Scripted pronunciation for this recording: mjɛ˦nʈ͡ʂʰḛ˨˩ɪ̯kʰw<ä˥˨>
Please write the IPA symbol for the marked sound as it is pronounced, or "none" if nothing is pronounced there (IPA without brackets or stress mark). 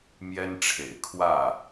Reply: ä˥˨